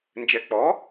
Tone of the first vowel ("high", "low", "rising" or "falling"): rising